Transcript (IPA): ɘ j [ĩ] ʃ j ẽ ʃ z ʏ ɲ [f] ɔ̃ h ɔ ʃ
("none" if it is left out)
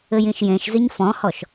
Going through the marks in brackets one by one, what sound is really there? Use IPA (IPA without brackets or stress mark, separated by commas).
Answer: ĩ, f